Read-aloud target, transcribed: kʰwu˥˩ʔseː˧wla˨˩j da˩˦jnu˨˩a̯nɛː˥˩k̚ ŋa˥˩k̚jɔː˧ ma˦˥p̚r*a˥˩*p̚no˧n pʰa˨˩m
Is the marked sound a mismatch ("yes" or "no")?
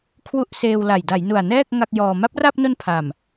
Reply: no